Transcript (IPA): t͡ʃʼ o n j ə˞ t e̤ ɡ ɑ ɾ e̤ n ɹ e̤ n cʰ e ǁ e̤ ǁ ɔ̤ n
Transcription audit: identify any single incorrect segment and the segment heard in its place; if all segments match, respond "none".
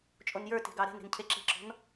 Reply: ɹ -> ɾ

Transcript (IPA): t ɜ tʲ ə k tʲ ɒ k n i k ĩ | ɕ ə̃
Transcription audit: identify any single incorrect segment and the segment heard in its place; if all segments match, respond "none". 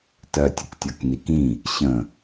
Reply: none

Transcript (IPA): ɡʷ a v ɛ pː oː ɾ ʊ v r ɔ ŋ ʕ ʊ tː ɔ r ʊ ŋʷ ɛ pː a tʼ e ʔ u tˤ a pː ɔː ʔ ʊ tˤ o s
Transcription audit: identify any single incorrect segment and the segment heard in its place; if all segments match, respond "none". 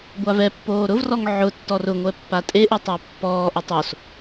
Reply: none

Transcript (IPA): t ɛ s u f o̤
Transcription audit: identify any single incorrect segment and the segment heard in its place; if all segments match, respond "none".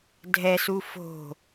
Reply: t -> dʱ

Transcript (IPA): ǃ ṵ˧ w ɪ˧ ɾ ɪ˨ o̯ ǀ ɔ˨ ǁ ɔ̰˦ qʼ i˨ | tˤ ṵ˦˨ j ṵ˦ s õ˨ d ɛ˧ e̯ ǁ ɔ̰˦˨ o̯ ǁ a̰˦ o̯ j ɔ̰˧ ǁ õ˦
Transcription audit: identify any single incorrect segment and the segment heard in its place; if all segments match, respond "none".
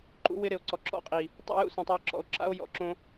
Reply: d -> tˤ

